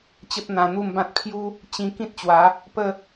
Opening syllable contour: high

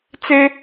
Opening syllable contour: high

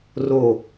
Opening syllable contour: falling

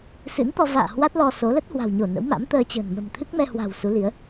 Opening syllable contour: rising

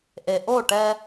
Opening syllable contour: low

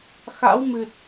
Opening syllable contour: rising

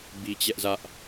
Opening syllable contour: high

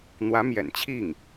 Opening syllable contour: rising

